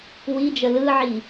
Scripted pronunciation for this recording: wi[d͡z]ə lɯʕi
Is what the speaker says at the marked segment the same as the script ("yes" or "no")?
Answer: no